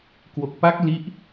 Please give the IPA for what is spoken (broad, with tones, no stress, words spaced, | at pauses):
kwo˨˩k̚pa˦˥k̚ li˦˥ʔ